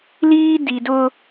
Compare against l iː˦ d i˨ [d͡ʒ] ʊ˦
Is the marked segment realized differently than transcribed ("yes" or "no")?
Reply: yes